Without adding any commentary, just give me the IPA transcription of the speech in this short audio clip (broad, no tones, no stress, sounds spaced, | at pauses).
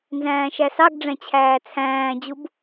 n z æ̃ː ʃ æ s ɑ ɡ ɖ͡ʐ æ̃ t͡ɕʰ æː t͡sʰ æ̃ː d͡ʑ u b